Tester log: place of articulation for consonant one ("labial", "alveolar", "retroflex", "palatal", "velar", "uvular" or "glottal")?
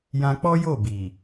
palatal